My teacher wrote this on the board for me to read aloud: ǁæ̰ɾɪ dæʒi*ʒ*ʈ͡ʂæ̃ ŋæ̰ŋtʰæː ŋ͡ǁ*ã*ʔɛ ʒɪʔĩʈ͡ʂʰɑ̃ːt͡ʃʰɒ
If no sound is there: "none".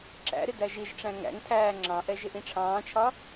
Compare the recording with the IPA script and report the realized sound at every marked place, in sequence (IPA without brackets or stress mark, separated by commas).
ʒ, ɑ̃